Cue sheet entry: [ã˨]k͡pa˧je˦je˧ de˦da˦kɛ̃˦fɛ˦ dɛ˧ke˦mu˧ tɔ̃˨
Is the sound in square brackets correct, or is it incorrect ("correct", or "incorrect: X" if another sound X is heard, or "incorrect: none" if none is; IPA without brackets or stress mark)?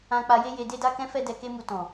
incorrect: ã˧